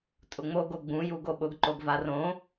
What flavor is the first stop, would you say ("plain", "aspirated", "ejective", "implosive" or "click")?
ejective